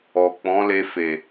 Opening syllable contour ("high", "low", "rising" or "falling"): low